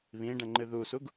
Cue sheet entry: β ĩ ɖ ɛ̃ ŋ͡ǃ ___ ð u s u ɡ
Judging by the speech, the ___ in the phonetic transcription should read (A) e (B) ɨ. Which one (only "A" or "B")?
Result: B